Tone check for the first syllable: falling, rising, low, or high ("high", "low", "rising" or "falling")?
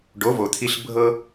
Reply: rising